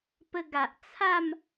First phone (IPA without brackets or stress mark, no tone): p